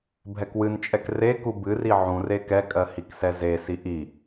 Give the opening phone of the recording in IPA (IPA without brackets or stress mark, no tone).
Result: bʱ